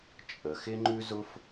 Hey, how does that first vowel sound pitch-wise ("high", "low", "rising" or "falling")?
low